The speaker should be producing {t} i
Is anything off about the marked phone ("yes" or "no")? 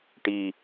yes